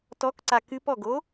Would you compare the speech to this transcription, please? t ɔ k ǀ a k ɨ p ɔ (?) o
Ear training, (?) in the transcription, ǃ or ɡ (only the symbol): ɡ